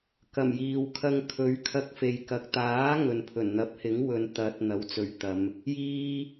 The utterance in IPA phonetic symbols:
k ɐ˨˩ m j iː˨ w kʰ ɐ˧ ŋ kʰ ɵ˨˥ ɥ kʰ ɐ˧ k̚ f e˨ j k ɐ˨ k̚ t̪ aː˨˥ ŋ ɵ˨ n pʰ ɵ˨˩ n n̪ ɐ˨˥ p̚ h ɪ˨˥ ŋ w ɵ˨ n t̪ ɐ˨˥ t̚ n̪ ɐ˨˥ w t͡s ɵ˨˧ ɥ t̪ ɐ˨˧ m | j iː˨

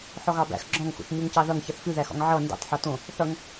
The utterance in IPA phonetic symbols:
ħ ɔ ɣ ɑ b æ̰ x ɡ͡ǁ ɔ̃ ŋ x ṵ θ ɲ u ŋ c ɑ ð ʌ ŋ ç ʌ θ f ʉ ð æ x ɔ̰ ŋ ʕ ʌ n d ṵ tˤ ħ ɔ t õ | θ ʌ ŋ

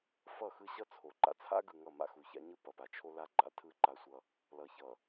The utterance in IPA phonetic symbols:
f ʌ˦˨ x ɯ˦ ɕ ʌ˦ t͡sʰ o˨ ǃ a̰˨ t͡sʰ a̰˦ ɡ ɯ˨ ŋ ʌ˦˨ m a̰˦ x u˨ ç a̰˦ ɲ ɯ˦ p ʌ˨ p a˨ t͡ʃʰ o˦ l a˦ ɡ͡ǃ a̰˦ tʰ ɯ˦ ǃ a˦ sʷ ʌ˦ | l ʌ˨ ç ʌ˨

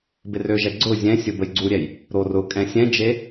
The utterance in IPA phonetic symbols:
b ɪ r ø ʒ ɛ ɡ͡ǀ ʊ zʲ ɛ̃ sʲ ʊ b ə j ɡ͡ǀ u ɾʲ ɛ j | ɾ o r ʊ kʼ ɛ̃ sʲ ɛ̃ d͡ʒ e

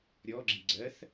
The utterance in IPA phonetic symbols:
ɾʲ ɔ ɡ͡ǁ i ɡ͡ǀ ɜ θ

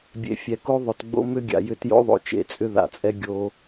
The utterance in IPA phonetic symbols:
bʲ ḛ˨ fʲ ɛ˨ k o˦ ðˤ ɵ˨ t ɡ͡b o̰˦ m ʏ˦ ɡʲ a̰˨ j ʏ˧ t j o̰˦ ðˤ o̰˨ t͡ʃ ḛ˨ t͡sʼ ʏ˦ ð a̰˨ t͡sʼ ɛ˦ ɡʲ o˧

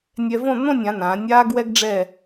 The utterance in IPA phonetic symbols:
nʲ ɛ˧ v õ˥˧ n̪ õ˥˧ nʲ ã˩˧ n ãː˩˧ nʲ aː˥ ɡ w ɛ˥ ɡ ɖ͡ʐ ɛ˥˧

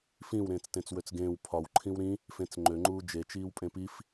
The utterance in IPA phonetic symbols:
f ĩ w ɾ ẽː t͡s t ẽ t͡s w ø t͡s ɡ ẽː w pʰ ɒ w ǃʰ ĩ w ɾ ĩ | f ẽ t͡s ŋ͡ǃ ø ŋ͡ǃ uː d͡ʒ e t͡ʃ iː w pʼ ẽ p i f

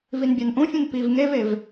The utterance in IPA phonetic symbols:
v i n bʲ a n ʔ ũ fʲ ũ n p i v ŋ e v e v

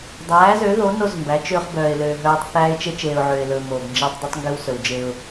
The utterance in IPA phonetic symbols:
dˤ æː˨˦ z ø˨˦ ð o˨˦ n o˦ z m b æ˨˦ t͡ʃ ø˦ χ b œː˨ ɪ̯ l øː˨ ɦ œː˦ tˤ θ æː˦ ɪ̯ t͡ʃ e˦ t͡ʃ eː˨ ʊ̯ ʕ øː˨ ɪ̯ l ɵː˨ m oː˨ ɡ n d͡ʒ æ˦ tˤ dˤ y˦ tˤ ŋ ɡ y˦ w s ɵ˨ w d͡ʒ eː˦ ʊ̯

